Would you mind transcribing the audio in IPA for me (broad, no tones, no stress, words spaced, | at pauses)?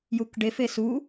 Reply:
jukɖe fesu